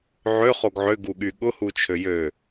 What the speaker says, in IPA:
ʕ ʏ χ o ɡ ʕ ʏ ɡ u ɠ y ɠ ʊ h u t͡ʃʰ ø j ø

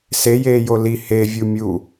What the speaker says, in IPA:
s e j eː j o l i h e vʲ u mʲ u

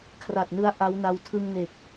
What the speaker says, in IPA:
kʰ r a˨˩ t̚ n ɯ˦˥ a̯ ʔ a˦˥ w n a˧ w tʰ ɯ˧ ŋ n e˨˩ k̚

